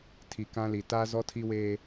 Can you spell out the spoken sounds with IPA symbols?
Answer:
tʰ i˨ k ã˦ l i˨ t aː˦ z ɔ˦ tʰ i˦ w eː˦

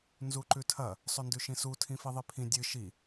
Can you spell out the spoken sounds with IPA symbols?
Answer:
n z u ǃ ʉ tʰ ɐ | sˤ ɵ n d ʉ ʃ ĩ s u tʰ ĩ f i ðˤ i pʰ ĩ dʲ ɨ ʃ i

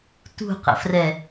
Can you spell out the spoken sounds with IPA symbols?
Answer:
t ṳ q ə̰ f r ɛ

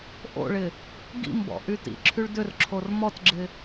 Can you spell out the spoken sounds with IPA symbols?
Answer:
ʔ o̰ ɭ ɪ | ɡ ḭ m b ɔ̰ ʔ y t ḭ ǁʰ y ɭ d ʏ r ǁʰ o r m ɔ t ɡ͡ǁ ɪ

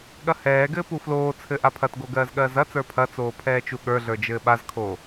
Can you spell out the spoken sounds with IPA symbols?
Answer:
ɠ ɐ h ɛː ɡ ɘː p u f l oː t͡sʰ ɘ ʔ a pʰ ɐ t ɡ o ɡ ɜː z ɠ ɜː z ɐ t͡s ə˞ pʰ ɐ t͡s oː pʰ ɛː t͡ʃ u ɠ ə˞ ɮ ə˞ d͡ʒ ɘː ɓ a z kʰ o

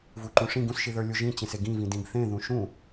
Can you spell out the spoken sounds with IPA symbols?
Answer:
v u ǃ ũ ʂ ĩ ɡ ũ s ʃ i ð ə˞ lʲ u ʒ ĩ t͡ɕ ẽ s e ɡ ĩ v ĩ d ĩ ɡ θ ẽ ð ũ ʃ ũ

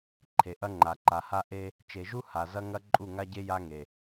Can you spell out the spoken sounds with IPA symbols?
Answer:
ǃʰ e˨ ʔ ɐ˦ ŋ͡ǃ a˨ ǃ a˨ h a˦ ʔ e˦ | t͡ʃ e˨ ʒ u˦ h a˨ z ɐ˦ ŋ ɐ˦ ǃʼ u˦˨ ŋ a˦ ɟ e˦ j a˦ ŋ e˨

